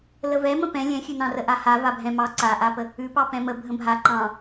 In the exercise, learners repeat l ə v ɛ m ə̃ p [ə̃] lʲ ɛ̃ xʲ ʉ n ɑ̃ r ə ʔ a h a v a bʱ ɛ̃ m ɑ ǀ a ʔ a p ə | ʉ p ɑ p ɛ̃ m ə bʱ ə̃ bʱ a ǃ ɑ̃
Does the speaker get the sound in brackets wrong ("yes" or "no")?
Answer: yes